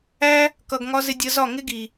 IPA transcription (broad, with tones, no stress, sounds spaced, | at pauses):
æ˦ | k ʌ˨ ɡ ŋ ɒ˧ z ɪ˧ dʲ ə˧ z ɒ˦˨ ŋ ɪ˦ ɡ i˨